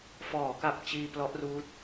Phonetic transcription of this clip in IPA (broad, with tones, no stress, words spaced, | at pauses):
fɔː˩˦ka˨˩p̚ t͡ɕiː˧ plɔ˦˥ʔruː˦˥t̚